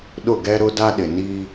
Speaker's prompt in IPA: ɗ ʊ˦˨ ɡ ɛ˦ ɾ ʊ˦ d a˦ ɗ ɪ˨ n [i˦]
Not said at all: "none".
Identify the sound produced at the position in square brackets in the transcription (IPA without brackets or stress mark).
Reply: i˦